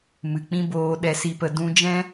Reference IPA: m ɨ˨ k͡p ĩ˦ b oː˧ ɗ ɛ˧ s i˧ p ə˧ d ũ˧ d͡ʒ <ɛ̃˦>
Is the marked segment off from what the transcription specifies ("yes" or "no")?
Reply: no